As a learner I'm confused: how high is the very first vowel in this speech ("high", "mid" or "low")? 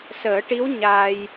mid